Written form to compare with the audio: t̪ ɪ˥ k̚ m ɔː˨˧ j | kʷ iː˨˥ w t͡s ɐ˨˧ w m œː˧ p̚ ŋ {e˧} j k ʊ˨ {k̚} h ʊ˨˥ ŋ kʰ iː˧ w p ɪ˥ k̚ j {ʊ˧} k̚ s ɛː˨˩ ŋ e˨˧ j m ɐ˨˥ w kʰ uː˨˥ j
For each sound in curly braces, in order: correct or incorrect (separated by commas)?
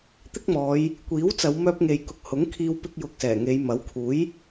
incorrect, correct, correct